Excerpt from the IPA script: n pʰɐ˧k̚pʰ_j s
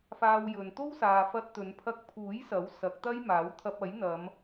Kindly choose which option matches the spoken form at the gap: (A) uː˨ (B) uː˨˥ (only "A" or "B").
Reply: B